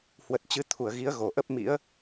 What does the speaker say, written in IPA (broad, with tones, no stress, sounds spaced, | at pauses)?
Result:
h w ə˨˩ t̚ t͡ɕ ɨ˨˦ t̪ʰ u˧˩ ə̯ ɣ i˨˦ ə̯ ɣ o˨˩ ʔ ə˦˥ p̚ m ḭ˧˥ ə̯